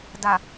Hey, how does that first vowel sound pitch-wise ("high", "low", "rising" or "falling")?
low